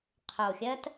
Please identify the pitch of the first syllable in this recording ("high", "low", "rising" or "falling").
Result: low